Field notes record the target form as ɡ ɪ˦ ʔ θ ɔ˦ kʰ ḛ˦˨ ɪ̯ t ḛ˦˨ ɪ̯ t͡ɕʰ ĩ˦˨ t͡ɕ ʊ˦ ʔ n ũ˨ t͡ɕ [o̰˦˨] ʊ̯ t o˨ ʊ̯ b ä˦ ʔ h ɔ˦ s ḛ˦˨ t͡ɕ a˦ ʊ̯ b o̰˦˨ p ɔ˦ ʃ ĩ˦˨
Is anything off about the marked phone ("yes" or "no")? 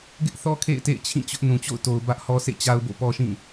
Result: no